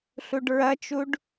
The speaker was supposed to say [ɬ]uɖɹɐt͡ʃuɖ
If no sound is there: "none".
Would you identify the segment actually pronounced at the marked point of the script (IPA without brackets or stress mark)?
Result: ɬ